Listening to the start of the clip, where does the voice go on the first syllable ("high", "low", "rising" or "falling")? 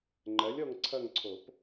rising